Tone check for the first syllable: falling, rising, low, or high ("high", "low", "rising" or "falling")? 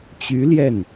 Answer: rising